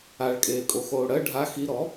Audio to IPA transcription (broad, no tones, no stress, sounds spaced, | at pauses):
a ɭ kʼ eː kʼ o x oː ɽ ɜ ɖʱ a x i ɾ ɔ